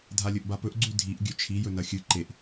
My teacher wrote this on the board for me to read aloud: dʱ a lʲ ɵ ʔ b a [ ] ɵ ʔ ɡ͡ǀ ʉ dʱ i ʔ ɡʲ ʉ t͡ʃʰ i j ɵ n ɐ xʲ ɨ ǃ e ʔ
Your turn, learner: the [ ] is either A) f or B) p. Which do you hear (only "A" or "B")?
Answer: B